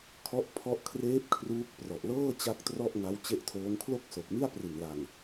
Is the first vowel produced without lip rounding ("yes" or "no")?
no